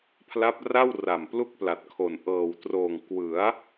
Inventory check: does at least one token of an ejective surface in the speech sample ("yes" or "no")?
no